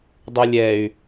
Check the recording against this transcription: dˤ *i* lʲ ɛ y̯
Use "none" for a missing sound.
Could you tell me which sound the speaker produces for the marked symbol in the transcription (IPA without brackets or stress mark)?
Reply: ɨ